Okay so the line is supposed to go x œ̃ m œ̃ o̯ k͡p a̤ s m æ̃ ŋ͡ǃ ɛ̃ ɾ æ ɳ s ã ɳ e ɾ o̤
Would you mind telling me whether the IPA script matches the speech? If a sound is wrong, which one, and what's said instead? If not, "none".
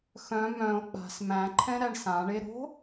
ŋ͡ǃ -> ǃʰ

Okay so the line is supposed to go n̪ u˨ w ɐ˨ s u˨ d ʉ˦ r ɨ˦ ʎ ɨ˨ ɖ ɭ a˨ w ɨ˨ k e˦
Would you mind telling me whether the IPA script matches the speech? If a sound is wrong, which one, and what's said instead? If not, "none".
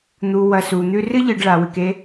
d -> n̪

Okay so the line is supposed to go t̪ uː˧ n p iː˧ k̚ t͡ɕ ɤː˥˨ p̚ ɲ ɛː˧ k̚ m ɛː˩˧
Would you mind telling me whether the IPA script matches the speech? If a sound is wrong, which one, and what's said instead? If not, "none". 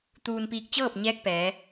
m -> p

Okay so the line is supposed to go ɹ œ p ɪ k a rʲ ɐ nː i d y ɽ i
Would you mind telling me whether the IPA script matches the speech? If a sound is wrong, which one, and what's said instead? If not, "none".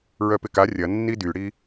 none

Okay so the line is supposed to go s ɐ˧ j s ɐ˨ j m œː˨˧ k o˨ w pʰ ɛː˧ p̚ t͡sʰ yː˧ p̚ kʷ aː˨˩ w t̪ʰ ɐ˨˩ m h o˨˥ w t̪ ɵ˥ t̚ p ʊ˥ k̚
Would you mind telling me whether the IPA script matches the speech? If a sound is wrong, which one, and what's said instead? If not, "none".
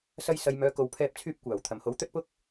none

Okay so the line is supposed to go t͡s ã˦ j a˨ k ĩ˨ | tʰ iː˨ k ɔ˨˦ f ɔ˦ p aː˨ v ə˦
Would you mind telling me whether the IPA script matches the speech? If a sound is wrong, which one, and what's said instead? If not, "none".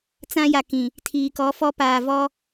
ə˦ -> ɔ˦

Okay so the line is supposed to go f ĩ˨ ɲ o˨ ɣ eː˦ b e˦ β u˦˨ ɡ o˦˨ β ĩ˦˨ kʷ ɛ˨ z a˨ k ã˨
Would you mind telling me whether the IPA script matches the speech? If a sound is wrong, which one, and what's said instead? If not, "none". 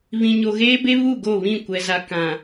f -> β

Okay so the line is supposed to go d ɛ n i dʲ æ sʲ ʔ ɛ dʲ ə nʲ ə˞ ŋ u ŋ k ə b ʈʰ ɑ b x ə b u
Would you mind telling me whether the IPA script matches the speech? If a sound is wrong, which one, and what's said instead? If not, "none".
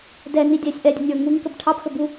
none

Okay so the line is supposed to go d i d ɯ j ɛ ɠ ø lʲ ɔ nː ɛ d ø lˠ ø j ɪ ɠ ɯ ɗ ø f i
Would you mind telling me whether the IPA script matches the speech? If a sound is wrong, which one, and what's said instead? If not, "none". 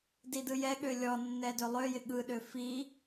none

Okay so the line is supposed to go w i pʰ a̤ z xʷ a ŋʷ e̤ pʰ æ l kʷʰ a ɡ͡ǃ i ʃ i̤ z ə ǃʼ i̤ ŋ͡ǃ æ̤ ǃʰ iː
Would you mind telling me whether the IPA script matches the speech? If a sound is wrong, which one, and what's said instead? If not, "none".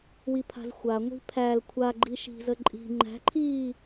e̤ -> i̤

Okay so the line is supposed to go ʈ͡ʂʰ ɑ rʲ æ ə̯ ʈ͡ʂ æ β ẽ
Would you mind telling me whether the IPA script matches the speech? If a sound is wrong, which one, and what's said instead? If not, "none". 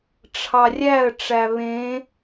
none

